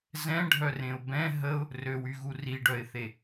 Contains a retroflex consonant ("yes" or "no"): yes